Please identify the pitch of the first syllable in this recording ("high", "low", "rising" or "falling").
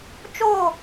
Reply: falling